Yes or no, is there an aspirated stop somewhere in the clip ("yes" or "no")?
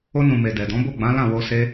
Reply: no